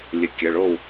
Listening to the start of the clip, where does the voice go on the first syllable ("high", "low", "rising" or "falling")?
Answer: rising